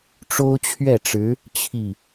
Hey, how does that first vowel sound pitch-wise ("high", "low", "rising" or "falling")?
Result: high